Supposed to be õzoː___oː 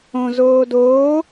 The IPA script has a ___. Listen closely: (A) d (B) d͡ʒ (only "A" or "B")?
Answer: A